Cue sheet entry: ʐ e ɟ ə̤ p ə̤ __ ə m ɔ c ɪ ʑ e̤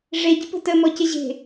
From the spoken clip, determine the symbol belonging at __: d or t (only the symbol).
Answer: t